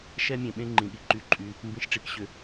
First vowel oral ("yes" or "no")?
yes